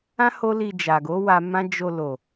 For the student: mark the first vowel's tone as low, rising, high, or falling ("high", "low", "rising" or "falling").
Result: high